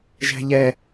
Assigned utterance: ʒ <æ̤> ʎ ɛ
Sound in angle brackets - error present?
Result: no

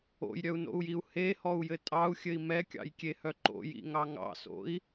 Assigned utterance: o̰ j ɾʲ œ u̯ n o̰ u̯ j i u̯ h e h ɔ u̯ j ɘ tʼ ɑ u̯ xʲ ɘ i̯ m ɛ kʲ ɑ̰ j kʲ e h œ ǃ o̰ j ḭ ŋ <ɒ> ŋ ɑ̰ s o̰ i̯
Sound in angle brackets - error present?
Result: yes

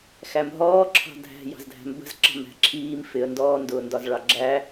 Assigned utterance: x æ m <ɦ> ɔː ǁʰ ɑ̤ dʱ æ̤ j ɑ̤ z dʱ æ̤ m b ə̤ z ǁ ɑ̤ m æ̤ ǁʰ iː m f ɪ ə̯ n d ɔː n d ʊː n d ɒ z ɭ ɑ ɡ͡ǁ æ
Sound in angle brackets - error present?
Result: no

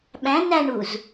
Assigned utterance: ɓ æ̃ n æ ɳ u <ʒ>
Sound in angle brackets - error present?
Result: yes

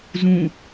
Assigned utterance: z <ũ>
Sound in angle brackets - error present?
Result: no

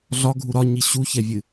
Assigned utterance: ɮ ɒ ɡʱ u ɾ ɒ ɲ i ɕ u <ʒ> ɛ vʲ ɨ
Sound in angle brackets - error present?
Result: yes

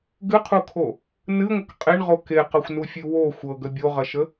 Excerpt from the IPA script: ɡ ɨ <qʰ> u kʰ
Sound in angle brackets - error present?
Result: no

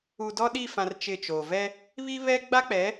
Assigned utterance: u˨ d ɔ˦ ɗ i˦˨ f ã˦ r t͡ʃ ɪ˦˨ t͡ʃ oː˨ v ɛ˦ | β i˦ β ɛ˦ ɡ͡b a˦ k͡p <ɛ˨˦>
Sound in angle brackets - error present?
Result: no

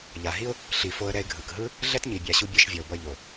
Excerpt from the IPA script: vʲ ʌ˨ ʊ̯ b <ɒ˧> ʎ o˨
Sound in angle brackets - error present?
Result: yes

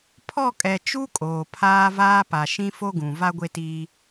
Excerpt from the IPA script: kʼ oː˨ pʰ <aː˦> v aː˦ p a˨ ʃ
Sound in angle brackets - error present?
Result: no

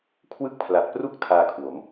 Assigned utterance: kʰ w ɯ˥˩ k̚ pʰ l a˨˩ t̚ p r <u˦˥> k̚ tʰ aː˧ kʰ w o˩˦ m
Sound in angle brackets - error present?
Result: yes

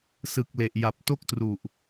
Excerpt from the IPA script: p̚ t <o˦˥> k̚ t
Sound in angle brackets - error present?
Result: yes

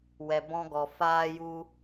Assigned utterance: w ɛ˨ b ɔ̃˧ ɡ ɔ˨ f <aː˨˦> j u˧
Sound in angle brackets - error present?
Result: yes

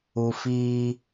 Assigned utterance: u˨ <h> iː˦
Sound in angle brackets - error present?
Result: yes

